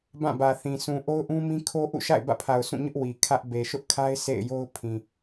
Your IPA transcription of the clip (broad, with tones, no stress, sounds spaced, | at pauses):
b ã˦˨ b ä˨ θ ĩ˨ s ũ˨ ʔ o˦ ʊ̯ ʔ ũ˦ m ĩ˦ kʰ o˦ ʔ ṵ˦˨ ʃ a̰˦˨ ɪ̯ b ä̰˦˨ pʰ a˨ ʊ̯ sʰ ũ˦˨ ɲ ʊ˦ ʔ w i˨ kʰ ä˦ ʔ b e˨ ʃ ʊ˦ ʔ kʰ a˦ ɪ̯ sʰ ḛ˦˨ ɪ̯ j o˦ ʊ̯ pʰ ĩ˨